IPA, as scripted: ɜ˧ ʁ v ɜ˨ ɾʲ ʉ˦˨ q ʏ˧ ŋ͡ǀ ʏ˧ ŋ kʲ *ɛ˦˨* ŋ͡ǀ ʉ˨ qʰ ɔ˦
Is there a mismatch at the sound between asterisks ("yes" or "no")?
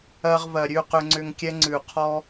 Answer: yes